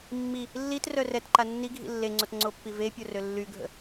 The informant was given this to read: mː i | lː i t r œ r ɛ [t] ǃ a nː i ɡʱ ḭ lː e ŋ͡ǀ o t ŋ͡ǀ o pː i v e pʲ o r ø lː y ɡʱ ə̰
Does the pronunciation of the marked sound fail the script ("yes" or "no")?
no